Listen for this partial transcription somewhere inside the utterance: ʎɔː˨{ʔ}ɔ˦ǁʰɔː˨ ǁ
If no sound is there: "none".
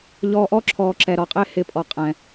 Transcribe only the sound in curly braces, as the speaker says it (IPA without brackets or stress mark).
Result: ʔ